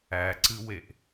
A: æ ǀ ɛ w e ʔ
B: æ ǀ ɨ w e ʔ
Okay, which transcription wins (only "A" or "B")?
B